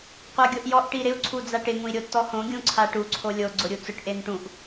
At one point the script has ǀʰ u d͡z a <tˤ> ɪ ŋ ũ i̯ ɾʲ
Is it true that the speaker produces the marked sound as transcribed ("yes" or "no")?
no